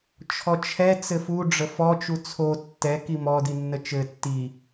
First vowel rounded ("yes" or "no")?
yes